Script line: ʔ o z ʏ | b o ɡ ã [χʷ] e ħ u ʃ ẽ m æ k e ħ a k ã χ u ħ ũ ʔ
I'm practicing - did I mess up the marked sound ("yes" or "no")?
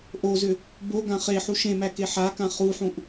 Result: yes